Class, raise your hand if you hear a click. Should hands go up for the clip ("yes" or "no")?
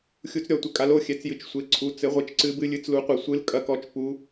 yes